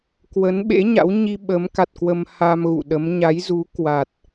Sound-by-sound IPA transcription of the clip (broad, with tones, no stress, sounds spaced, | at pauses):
k w ə˨˦ n ɓ ḛ˧˥ ɲ a̰˧˥ w ɲ i˧ ɓ əː˨˦ m k a˨˩ t̚ k w ə˧ m h a˧ m ɣ ṵ˧˨ ɗ ə˨˦ m ɲ a˨˦ j z u˨˦ k w a˨˩ t̚